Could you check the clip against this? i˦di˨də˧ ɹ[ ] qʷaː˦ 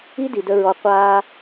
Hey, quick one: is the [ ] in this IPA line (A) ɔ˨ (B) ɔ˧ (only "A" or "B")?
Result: B